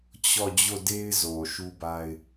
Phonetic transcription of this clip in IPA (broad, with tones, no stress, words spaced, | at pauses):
t͡ɕɔ˦˨ d͡ʑo˦˨de˦ɪ̯ zo˨ʃu˦ba˦ɪ̯